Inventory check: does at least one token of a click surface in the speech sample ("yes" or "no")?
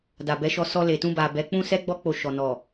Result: no